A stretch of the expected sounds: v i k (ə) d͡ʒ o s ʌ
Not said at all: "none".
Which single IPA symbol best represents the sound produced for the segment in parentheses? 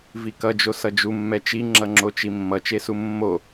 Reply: ʌ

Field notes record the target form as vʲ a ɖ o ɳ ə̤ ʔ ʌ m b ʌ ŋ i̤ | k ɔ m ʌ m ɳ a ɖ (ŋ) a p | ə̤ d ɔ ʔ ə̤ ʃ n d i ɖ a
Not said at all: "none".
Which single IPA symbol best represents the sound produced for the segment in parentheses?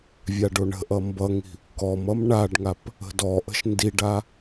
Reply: ŋ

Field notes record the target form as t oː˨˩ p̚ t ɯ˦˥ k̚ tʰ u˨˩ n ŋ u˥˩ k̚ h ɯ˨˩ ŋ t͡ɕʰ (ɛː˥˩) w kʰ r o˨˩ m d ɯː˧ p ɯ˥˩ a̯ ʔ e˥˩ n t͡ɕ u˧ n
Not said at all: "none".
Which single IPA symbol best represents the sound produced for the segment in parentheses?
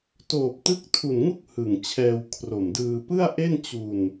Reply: ɛː˧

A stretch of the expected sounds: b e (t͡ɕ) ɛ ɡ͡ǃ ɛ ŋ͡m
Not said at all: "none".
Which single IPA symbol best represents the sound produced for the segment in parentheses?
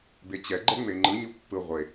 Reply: t͡ɕ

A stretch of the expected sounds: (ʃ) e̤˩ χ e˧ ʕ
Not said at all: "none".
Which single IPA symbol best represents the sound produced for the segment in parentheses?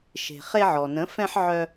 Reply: ʃ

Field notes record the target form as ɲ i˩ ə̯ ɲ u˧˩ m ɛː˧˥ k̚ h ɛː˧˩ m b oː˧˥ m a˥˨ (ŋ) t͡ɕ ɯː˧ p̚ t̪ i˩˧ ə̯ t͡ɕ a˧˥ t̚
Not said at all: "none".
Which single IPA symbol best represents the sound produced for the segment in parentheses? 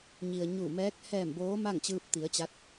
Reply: ŋ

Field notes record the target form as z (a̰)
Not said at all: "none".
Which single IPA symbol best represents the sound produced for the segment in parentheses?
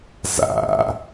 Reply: a̰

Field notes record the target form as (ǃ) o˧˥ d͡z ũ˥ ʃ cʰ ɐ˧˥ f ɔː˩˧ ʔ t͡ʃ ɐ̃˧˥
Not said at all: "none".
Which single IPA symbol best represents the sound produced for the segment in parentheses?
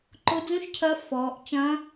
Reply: ǃ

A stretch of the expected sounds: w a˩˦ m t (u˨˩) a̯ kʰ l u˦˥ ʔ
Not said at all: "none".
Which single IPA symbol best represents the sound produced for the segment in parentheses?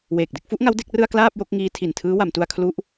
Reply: u˧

